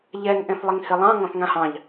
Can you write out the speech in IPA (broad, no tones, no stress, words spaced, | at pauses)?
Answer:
ʎɛn ʔẽθlˠiŋhilˠɑ̃ ŋɔ̃θŋãhɑ̃ʎ